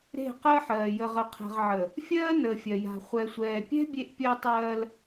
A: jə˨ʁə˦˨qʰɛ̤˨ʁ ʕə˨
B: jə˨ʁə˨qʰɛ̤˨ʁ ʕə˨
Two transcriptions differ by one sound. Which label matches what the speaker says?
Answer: B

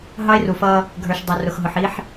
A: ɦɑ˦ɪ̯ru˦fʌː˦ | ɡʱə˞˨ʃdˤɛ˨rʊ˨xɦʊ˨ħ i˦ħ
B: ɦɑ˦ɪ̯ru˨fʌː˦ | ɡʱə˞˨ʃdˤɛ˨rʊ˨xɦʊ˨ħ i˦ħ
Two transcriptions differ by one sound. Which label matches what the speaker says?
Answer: B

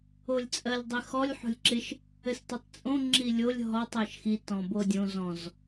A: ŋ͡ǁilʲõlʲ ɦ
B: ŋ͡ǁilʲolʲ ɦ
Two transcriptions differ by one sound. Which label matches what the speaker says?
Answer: B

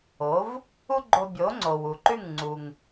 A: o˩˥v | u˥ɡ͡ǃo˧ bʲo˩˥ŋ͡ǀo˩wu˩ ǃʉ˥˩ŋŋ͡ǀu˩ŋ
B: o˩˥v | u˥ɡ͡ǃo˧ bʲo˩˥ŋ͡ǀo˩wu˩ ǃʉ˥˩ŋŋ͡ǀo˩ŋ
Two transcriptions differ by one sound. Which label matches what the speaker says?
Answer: A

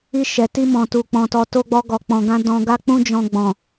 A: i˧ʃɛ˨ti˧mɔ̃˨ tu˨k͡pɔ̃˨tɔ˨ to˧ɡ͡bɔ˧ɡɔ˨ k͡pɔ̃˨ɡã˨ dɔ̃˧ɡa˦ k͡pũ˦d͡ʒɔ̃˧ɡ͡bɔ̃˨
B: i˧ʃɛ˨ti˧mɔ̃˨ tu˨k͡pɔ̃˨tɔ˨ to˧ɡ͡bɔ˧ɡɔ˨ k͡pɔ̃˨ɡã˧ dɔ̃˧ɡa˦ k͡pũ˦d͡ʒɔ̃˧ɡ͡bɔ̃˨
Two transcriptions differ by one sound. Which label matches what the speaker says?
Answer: B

